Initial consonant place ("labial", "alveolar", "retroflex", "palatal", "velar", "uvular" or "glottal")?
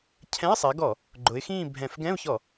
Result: palatal